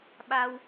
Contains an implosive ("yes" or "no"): yes